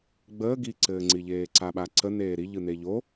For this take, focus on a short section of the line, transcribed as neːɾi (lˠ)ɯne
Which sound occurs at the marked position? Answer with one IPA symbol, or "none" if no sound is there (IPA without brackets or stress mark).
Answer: ʎ